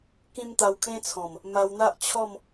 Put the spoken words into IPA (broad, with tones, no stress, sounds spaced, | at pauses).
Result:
k ĩ˦ m t̪ a˧ w kʰ ẽ˦ t͡sʰ ɔ̃˨˩ m | m a˧ w n̪ a˦ ʔ t͡ɕʰ ɔ˥˧ m